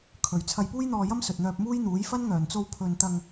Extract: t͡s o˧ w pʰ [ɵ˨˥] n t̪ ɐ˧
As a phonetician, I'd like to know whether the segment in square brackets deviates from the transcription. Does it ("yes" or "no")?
yes